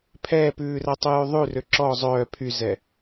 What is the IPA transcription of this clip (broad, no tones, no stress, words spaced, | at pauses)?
pʰɛːpʉːrætˤʉ jʉðˤʉ røǁɔ zˤœː pʰyzɛ